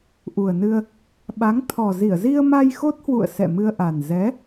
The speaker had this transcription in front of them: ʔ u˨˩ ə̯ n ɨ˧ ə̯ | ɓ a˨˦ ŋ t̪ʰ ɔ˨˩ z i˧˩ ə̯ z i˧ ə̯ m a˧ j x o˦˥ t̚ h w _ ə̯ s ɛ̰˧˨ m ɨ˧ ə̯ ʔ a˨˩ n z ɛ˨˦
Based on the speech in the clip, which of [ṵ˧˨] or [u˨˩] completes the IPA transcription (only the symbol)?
ṵ˧˨